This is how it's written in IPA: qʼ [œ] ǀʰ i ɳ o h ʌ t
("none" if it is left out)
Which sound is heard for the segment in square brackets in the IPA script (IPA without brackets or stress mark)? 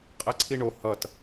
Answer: ɛ